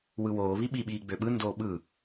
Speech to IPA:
w ɯ w oː β i ɓ i ɓ iː ɡ͡b ø ɓ ɯ n d oː ɓ ɯ

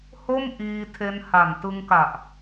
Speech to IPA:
h o˥˩ m ʔ iː˧ tʰ e˧ n h a˨˩ n t ɯ˧ ŋ k a˨˩ ʔ

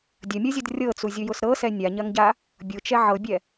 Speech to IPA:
dʲ ɐ mʲ ɤ zʲ ʊ d rʲ ɤ t͡s u zʲ ʊ j ʊ s ɾ ɤ s ɛ nʲ a ɲ ɐ ŋ ɟ a | bʲ ʊ t͡ʃ ɛ ʕ ɤ bʲ ɛ

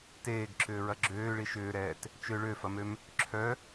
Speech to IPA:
t eː ɡ ǁ ʏː ɹ ɐ ɡ͡ǁ øː ɭ i ʃ ʏː ɾ ɛː t | t͡ʃ ø ɭ ø f ɐ m ø m | ǁʰ œ

